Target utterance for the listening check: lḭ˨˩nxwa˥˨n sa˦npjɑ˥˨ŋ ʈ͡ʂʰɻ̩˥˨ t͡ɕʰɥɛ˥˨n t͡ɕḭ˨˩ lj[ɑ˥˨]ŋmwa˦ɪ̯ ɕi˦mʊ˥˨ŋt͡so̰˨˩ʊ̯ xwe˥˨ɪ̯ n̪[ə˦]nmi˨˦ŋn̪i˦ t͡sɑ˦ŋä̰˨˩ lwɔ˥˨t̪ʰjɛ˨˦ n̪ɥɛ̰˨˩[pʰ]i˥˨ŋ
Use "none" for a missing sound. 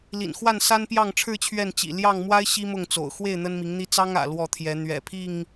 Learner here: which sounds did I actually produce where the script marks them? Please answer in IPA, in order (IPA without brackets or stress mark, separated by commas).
ɑ˥˨, ə˦, pʰ